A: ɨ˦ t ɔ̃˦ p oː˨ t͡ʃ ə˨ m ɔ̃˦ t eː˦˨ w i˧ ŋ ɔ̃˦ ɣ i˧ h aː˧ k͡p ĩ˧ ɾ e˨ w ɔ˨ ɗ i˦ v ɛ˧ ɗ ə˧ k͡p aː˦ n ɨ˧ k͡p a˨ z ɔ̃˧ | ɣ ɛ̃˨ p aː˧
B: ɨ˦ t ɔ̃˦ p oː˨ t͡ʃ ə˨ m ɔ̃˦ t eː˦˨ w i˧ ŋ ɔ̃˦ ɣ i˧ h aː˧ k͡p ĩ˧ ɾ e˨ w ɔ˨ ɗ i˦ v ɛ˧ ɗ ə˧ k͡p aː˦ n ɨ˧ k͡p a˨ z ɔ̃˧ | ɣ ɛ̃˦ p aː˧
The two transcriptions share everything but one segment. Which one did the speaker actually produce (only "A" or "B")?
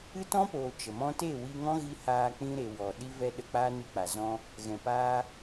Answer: A